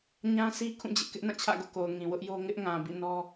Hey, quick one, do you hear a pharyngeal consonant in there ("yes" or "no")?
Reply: no